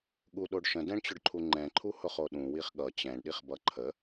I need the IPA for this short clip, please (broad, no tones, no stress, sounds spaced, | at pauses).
ɠ u ɗ o ɖ ʃ ə̃ d ɛ̃ ɳ t͡ɕ ʊ ɖ ǃʰ u ŋ͡ǃ ɛ̃ ǃʰ u h ʊ χ o ɗ ũ w i χ ɠ ʌ t͡ɕ ɛ̃ ɳ ɗ i χ b ʌ ǃʰ ə